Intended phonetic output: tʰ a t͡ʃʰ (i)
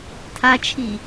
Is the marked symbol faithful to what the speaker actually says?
yes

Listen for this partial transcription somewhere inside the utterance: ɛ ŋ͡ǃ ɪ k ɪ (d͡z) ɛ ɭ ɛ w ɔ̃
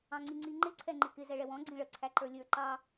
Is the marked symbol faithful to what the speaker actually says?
no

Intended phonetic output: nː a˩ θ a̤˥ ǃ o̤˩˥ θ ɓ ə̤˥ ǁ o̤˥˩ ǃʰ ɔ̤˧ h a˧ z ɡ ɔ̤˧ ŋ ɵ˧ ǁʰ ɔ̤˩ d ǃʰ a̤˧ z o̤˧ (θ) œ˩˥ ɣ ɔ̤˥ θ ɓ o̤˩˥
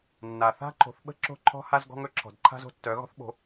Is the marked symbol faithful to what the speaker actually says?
no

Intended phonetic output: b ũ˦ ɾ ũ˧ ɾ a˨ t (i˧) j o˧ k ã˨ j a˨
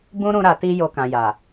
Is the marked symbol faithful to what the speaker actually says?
yes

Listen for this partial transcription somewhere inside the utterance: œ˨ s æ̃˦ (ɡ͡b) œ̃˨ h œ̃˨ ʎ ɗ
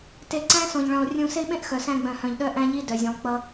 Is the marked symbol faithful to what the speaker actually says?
yes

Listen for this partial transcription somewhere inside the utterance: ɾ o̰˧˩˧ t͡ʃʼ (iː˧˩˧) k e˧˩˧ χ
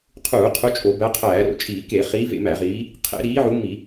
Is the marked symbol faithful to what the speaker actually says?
yes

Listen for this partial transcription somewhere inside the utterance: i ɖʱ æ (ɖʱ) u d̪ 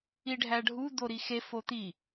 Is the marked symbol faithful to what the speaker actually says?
yes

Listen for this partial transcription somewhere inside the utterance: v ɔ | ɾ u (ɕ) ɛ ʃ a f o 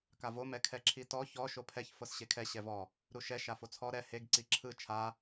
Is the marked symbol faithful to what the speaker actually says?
no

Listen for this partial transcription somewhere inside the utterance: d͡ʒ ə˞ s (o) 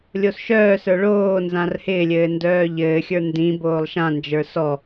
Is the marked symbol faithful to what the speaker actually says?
no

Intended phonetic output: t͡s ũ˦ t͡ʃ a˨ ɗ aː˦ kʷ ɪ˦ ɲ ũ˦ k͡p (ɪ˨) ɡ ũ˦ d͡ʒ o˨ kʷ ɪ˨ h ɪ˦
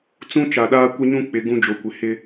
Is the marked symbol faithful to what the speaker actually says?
yes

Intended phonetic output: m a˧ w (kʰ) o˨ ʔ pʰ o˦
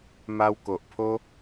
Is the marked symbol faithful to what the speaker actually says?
no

